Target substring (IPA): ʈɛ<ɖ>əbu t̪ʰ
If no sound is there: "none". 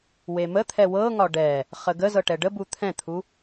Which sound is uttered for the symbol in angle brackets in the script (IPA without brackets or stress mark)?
ɖ